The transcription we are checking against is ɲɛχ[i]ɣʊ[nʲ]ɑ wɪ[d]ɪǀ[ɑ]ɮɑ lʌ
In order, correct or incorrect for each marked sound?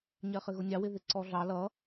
incorrect, correct, incorrect, incorrect

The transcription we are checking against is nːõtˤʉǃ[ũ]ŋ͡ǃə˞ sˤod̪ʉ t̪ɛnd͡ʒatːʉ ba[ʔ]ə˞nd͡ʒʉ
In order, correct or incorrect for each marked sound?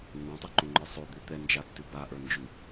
incorrect, correct

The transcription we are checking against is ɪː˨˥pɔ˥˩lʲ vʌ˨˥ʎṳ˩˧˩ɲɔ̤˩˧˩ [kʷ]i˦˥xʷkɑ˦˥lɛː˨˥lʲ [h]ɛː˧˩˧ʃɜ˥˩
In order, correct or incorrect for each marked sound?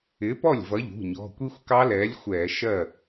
correct, incorrect

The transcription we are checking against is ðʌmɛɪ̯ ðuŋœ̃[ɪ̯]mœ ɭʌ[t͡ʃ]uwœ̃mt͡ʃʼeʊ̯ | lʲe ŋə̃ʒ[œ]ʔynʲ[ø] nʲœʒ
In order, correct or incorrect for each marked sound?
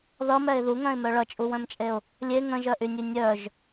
correct, incorrect, correct, incorrect

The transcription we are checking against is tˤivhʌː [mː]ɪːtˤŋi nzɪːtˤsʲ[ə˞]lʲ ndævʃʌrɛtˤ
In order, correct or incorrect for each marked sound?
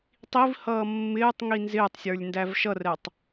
correct, correct

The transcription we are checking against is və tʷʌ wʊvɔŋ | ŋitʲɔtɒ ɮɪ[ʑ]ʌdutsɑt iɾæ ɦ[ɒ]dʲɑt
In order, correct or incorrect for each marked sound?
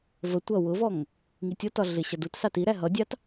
incorrect, incorrect

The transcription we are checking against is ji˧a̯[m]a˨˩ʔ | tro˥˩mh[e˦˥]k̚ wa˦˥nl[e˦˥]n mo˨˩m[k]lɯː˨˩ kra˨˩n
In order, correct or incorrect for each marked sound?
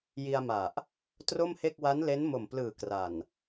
correct, incorrect, correct, incorrect

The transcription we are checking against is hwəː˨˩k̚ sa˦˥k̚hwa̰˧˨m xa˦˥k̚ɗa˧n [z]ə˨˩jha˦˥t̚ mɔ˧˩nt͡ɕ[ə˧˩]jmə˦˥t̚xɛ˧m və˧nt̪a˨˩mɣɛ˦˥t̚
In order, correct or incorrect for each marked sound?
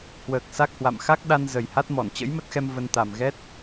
correct, incorrect

